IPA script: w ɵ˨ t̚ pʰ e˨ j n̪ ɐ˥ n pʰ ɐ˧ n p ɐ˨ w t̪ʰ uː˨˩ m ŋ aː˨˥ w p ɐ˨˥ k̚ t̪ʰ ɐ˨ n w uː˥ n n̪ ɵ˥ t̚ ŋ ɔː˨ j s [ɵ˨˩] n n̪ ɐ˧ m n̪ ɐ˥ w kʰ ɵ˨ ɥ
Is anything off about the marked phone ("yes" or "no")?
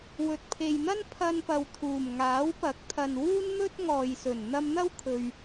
no